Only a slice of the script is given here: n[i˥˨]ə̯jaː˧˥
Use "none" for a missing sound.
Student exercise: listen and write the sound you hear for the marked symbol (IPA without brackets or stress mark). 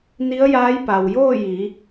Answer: i˧˥